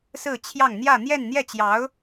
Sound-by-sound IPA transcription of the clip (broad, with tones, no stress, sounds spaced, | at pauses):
s ɹ̩˥˧ t͡ɕʰ j ɑ˥˧ ŋ n̪ j ä˥˧ n̪ j ɛ˥˧ n n̪ j ɛ˥˩ t͡ɕ j ɑ˧˥ ʊ̯